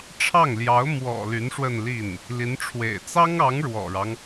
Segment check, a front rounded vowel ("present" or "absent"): present